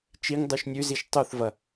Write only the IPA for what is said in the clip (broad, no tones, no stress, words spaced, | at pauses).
t͡ʃiŋ dˤʉʃnʲʉziʃ tˤuθvɐ